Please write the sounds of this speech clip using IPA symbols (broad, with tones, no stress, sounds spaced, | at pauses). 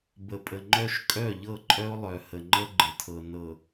b ə˨ pʼ ə˨ ŋ͡ǃ œ˦ ʃ kʼ œ˦˨ ʎ ɤ˦˨ ǃʼ œ˦ o̯ lˠ œ˨ h ə˨ ŋ͡ǃ ə˦ ɡ͡ǃ ə˨ tʰ ɤ˨ n ɤ˨